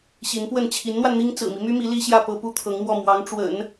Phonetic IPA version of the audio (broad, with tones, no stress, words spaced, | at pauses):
ɕi˧˥npwə˥˩n t͡ɕʰi˧˥nn̪wa˧nn̪i˥ŋ t͡sɹ̩˨˩mi˦my˥mi˧˥ li˥ɕjä˥˩ pɤ˥pu˥t̪ʰɤ˧˥ŋmwɔ˥˩ mwɑ˧˥ŋʈ͡ʂwə̰˨˩˦n